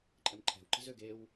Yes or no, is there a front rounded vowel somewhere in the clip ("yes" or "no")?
yes